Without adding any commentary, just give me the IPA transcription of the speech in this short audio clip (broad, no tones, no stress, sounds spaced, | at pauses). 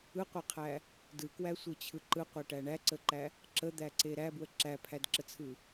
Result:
ɯ qʷ æ qʰ æ | d ɯ k w æ sʷ ɯ t͡ɕʰ ɯ ǃ ɯ qʷ æ ʈ æ ɳ æ ǀ ə ǃ æ | ǁ ə d̪ æ ǀ e ɾ æ b w ə ǁ æ pʰ æ d ǁ ə t͡sʰ ɯ